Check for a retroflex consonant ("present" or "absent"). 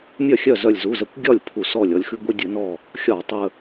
absent